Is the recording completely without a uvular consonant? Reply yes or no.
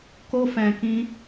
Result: yes